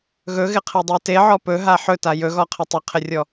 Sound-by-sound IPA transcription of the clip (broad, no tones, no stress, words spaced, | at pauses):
ɣɵɣɪqʰedˤe teʕɔ pɵɦa ħɵta jɵɣɔqʰɪ tˤɪqʰɪrʲɔ